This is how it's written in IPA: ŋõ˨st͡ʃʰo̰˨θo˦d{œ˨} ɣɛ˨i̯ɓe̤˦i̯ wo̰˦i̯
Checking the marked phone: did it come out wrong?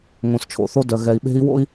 no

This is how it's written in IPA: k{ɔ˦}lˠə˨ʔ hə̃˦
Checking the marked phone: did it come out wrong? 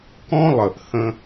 yes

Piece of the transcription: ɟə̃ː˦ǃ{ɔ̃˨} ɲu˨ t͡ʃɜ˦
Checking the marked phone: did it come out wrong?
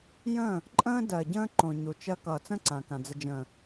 yes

